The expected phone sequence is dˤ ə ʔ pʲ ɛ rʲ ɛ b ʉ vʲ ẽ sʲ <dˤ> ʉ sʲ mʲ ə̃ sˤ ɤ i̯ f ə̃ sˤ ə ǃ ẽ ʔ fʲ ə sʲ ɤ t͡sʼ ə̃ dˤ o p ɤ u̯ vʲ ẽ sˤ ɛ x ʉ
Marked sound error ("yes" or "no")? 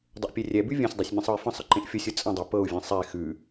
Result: no